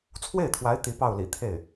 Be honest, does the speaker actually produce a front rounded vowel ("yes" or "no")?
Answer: no